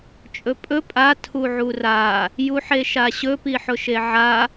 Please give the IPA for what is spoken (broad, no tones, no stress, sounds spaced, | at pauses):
t͡ʃʼ ɵ pʼ ɵ pʼ a tʰ u ʕ u r a | j u ħ e ʃ a ɕ ɵ p i ħ ʊ ʃ e ʕ a